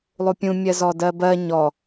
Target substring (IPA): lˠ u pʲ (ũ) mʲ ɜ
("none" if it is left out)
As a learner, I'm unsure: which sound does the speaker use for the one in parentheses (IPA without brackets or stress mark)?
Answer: ũ